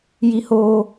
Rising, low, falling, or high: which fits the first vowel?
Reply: high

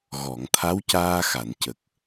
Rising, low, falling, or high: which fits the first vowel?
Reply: low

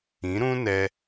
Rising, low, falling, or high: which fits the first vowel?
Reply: rising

